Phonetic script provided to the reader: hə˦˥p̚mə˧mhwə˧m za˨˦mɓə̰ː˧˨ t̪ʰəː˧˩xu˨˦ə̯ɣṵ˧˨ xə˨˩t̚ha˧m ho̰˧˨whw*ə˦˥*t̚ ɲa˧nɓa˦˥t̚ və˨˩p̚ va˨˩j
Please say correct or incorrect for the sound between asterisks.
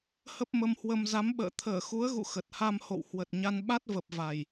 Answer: incorrect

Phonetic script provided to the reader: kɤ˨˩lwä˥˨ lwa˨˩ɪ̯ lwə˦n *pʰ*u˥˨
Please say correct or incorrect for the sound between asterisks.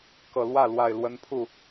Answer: correct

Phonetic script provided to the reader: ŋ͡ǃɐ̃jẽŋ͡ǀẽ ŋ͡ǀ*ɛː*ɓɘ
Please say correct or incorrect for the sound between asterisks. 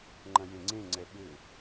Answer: incorrect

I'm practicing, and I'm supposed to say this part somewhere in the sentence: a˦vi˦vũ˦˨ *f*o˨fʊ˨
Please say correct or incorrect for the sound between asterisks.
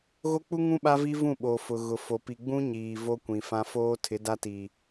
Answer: incorrect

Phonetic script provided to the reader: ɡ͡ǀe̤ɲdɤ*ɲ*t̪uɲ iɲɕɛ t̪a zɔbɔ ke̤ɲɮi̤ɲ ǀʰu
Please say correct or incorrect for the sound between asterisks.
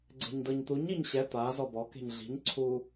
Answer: correct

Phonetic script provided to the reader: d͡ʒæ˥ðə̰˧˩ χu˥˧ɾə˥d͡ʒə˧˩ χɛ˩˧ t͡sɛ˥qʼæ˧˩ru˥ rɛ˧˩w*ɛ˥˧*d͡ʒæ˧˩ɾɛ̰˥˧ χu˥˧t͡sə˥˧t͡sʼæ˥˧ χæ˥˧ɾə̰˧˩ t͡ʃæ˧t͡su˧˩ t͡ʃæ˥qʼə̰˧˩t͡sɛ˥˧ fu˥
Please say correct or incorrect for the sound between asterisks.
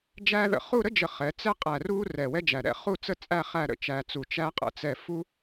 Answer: incorrect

